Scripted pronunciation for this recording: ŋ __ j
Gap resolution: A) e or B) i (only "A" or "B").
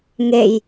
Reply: A